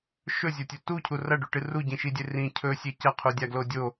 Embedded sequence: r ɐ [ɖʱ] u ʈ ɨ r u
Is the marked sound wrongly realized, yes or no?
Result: yes